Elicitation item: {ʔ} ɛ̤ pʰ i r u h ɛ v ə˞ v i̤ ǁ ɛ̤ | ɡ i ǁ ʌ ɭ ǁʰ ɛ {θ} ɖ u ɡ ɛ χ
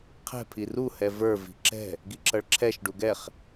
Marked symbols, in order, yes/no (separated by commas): no, no